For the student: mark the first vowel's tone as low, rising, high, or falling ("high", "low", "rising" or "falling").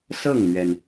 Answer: falling